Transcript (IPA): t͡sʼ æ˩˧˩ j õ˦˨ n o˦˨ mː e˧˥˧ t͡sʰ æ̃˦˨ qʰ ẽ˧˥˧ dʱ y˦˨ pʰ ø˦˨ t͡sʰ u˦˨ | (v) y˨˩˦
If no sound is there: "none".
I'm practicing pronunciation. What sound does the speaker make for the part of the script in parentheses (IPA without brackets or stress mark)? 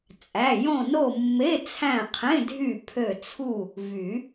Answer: v